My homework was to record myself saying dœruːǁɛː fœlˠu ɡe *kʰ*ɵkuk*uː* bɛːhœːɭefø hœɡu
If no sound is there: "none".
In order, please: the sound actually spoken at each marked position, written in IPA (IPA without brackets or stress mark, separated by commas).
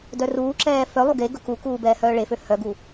ɡ, uː